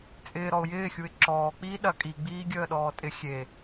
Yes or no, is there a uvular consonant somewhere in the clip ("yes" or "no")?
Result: no